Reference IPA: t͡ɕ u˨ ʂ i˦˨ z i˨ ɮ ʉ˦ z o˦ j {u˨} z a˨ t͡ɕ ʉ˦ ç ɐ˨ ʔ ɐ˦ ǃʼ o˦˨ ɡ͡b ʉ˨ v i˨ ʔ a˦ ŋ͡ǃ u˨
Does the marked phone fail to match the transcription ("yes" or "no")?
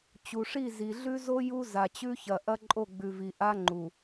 yes